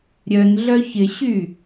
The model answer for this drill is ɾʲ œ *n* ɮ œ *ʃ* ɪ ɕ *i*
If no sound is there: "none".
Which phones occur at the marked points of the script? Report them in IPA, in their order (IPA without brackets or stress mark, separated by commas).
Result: n, ç, y